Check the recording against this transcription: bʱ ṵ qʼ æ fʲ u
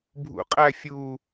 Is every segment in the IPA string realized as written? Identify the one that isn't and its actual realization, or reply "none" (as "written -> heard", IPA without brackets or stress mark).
none